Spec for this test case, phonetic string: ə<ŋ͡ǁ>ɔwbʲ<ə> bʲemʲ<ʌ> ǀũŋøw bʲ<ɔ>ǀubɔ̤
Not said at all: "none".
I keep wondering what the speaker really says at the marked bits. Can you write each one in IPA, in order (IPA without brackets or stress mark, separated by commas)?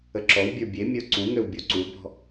ǁ, ə˞, ə˞, o